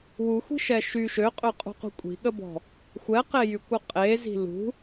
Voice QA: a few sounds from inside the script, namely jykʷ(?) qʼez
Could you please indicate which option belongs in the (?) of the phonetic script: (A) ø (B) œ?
B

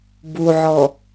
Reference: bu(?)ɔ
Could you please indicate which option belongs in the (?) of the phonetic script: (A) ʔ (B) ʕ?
B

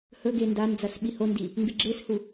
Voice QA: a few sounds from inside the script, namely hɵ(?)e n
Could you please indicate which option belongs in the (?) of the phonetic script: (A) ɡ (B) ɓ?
A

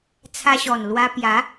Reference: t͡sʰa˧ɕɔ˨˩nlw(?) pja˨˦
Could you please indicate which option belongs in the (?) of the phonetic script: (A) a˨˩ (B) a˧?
B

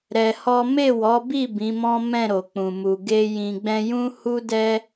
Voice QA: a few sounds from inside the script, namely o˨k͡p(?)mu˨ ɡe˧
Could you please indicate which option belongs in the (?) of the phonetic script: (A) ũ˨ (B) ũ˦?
A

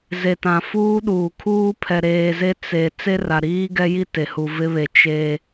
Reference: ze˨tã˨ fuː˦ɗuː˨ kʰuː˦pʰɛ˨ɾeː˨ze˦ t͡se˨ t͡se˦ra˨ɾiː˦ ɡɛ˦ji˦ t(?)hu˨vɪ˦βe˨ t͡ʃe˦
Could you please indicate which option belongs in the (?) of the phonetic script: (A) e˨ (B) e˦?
A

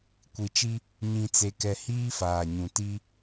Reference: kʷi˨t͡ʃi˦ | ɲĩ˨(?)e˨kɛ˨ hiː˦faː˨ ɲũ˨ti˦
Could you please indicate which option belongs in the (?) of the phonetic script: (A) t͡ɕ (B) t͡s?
B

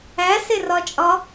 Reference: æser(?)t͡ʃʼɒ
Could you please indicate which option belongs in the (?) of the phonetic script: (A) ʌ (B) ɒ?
B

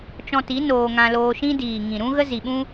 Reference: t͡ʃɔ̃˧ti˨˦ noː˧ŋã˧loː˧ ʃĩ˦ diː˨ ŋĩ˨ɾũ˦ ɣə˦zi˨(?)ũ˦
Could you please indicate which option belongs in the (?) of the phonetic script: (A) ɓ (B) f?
A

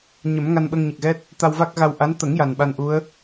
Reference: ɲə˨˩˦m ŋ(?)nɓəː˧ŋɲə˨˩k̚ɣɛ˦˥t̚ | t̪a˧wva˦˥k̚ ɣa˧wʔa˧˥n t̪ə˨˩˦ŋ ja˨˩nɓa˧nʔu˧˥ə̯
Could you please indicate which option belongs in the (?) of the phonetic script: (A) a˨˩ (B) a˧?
B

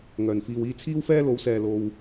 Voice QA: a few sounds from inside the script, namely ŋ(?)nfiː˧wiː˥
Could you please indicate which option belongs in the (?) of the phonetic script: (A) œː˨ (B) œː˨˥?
A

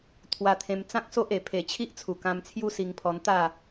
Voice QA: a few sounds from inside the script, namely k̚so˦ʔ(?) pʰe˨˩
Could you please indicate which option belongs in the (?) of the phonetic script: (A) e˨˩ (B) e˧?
A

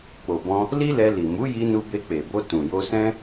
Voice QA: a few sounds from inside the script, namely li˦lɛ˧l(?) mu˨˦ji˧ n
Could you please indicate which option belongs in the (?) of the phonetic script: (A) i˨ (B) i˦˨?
A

